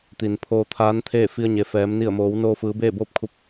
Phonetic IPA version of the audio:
t̪i˩npʰoː˧t̪ʰaː˧˥nt̪ʰeː˥˨ fi˧ə̯ɲe˩fɛː˩˧m ni˧˩ə̯moː˩˧wnoː˧ fɯː˩˧beː˥˨boː˥˨p̚kʰu˧p̚

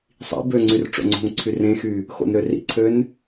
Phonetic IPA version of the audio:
sˤḭ bøŋ͡ǀyr ʈ͡ʂo̰ŋ͡ǀo̤ŋǀʰy rẽxy | xo̰nɾørḭǀʰøn

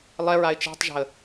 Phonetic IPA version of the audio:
lˠɛɹaɪ̯ t͡ʃe̤tˤʒa̤ə̯

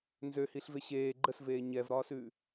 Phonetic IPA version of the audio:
nzøhiːɬve ɕeː ɡ͡ǃəsveː ɲɛvɾɒːsʉː

